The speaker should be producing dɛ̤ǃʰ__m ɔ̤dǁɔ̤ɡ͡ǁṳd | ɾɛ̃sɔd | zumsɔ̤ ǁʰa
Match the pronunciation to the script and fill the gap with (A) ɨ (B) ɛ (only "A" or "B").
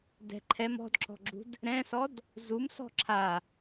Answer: B